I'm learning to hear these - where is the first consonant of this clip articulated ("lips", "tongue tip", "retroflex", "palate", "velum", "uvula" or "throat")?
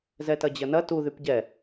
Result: tongue tip